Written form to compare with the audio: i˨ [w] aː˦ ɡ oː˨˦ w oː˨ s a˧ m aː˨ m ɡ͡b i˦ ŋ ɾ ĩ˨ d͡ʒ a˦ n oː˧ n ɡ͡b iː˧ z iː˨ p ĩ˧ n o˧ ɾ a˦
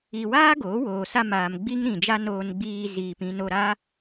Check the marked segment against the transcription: correct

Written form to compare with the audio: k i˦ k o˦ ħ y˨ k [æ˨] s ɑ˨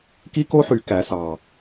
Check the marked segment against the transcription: correct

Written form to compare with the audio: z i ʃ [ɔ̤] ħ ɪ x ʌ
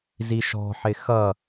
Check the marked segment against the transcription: correct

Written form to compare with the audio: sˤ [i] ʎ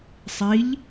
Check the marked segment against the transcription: correct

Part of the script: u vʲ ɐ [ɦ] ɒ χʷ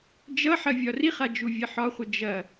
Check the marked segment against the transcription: incorrect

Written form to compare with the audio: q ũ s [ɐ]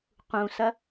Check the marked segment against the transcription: correct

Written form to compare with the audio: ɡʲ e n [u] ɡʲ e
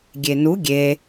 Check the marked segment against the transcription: correct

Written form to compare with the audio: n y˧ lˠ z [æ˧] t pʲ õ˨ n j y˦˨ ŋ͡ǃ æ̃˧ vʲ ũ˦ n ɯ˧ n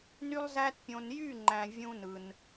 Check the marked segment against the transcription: correct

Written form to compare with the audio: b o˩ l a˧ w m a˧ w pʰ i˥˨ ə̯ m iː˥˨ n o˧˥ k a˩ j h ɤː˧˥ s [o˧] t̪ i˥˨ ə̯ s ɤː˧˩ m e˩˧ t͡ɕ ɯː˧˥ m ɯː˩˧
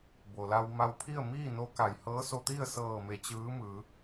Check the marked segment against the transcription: correct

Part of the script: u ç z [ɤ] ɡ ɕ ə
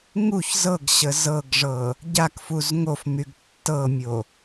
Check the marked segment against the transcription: correct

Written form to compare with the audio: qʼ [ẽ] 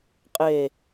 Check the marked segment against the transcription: incorrect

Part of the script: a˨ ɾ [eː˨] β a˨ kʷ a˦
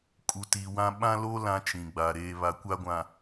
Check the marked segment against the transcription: correct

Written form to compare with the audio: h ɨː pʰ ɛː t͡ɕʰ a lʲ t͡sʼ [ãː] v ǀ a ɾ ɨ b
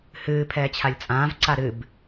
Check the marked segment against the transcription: correct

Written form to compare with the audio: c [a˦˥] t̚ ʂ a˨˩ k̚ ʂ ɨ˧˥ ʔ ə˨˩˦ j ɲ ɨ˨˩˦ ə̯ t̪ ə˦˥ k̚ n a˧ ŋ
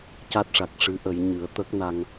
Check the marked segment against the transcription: correct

